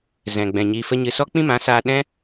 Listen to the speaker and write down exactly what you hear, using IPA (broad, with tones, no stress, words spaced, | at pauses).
zɛ̃˨ɡ͡bɛ̃˨ ɲiː˧fə˦ ɲɨ˧ sɔ˦k͡pĩ˦mã˨˦ saː˧ ɗɛ̃˦